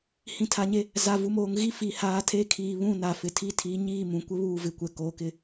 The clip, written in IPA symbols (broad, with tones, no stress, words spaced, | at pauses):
hĩ˨tʰa˨ɲe˦ | za˨ vu˨moː˨ŋ ɣi˦ fi˨haː˨˦tʰe˦ kʰiː˨βũ˦˨ na˨fɪ˨ tʰi˦tʰi˨˦ɲiː˦˨mũ˨ kʷɪ˦βuː˦˨vɪ˨kʷɛ˨ koː˨˦kɪ˦